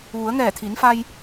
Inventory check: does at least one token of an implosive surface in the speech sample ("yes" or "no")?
no